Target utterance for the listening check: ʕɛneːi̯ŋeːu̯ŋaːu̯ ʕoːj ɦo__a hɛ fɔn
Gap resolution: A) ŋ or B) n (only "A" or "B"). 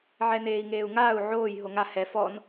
A